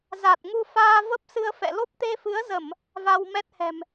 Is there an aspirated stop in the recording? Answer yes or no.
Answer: no